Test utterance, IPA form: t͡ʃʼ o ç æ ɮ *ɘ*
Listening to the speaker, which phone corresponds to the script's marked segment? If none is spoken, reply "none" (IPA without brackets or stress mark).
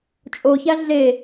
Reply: e